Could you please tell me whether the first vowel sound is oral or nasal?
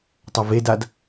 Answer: oral